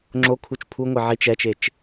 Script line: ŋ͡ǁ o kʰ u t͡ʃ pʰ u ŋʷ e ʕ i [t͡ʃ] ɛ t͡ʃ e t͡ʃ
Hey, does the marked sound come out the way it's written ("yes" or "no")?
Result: yes